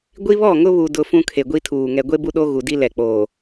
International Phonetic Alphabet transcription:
ɡʷ i˦ β ɔ˦˨ ŋ ʊ˦ β u˨ d ʊ˨ f ũ˦ kʰ e˨ ɡʷ i˦ tʰ uː˨ ŋ ɛ˨ ɡʷ e˦ b u˦ ɗ o˦ ɣ u˨ d i˦ l ɛ˨ k͡p oː˨

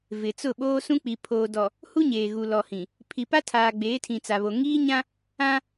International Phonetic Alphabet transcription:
v ɪ˨ t͡s ʊ˦˨ ɓ oː˦ s ũ˦ k͡p i˨ pʰ oː˨ d ɔ˨ | h u˦ ɲ eː˨ ɣ u˨ l ɔ˨ h ĩ˨ | pʰ i˨ p a˦ tʰ aː˨ ɡ͡b eː˨˦ tʰ ĩ˨ t͡s a˨ β o˨ ŋ iː˦ ɲ ã˦ | ã˦

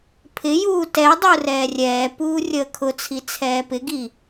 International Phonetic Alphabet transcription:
pʰ ɪ j uː t ɛ dˤ u r ɛː rʲ ɛː p uː rʲ əː kʰ ʊ t͡sʰ i t͡sʰ ɛː p ɪ ɡ i

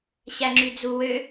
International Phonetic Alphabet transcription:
ɕ æ ŋ͡ǁ y d͡z u w ø

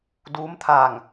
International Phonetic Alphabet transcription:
d uː˧˥ m t̪ʰ aː˧˩ ŋ

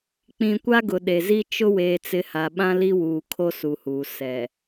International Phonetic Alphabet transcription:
k͡p ĩ˨ kʷ a˦ ɡ ʊ˨ ɗ e˨ z i˦ t͡ʃ ʊ˦ w eː˨ t͡s ɪ˨˦ h a˨ ɓ ã˦ l i˦ w uː˨ kʰ o˦ s u˨ h uː˨ s ɛ˨

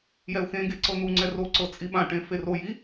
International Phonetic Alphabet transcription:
j ɛ ʊ̯ x ẽ ɡ e ǀ ɤ n u ŋ͡ǀ ɛ r o ǀ ɤ t͡sʼ i ɓ ã ʈ ẽ f e r o j i

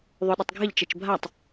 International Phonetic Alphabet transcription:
ðˤ ø ɗ ə tˤ ɡʱ ə ʎ t͡ʃ ʌ t͡ʃ bʱ a tˤ

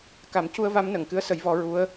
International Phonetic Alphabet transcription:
k a˨˩˦ m c u˧ ə̯ v a˧˥ m n ə˨˩˨ ŋ k ɨ˧˥ ə̯ s ə˨˩˦ j v ɔ˨˩˦ ɹ u˧˥ ə̯

